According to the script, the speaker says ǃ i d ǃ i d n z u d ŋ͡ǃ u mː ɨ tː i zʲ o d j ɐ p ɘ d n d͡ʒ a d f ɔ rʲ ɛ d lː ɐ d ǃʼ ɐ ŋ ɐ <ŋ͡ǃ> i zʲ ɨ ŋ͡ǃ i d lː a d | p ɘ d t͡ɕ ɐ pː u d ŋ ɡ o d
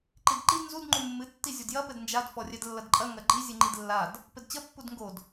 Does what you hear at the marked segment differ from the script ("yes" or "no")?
yes